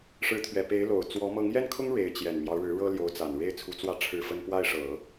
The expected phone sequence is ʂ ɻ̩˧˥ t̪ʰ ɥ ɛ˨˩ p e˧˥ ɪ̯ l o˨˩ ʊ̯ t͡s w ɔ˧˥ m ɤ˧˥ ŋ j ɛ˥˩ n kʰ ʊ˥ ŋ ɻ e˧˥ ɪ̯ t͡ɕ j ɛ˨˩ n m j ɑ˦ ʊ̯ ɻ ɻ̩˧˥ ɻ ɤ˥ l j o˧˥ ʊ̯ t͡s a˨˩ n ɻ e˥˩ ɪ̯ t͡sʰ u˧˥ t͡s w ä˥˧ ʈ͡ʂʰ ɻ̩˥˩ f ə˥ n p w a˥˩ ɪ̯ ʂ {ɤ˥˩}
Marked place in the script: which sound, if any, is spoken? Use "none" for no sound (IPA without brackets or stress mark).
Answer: ɤ˨˩˦